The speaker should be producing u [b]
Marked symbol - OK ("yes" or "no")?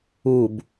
yes